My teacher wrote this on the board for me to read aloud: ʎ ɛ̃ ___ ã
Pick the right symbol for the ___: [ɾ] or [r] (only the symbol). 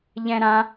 ɾ